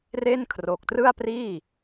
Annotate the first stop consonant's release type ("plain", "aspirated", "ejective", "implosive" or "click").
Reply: aspirated